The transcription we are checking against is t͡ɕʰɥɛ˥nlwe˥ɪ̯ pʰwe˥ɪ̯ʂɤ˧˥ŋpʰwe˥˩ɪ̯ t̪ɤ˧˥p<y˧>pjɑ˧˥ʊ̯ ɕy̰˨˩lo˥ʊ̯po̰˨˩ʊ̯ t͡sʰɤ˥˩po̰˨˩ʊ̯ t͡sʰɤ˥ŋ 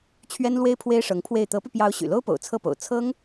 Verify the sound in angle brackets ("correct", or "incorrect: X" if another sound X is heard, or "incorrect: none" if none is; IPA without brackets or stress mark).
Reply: correct